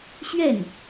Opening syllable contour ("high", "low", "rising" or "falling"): falling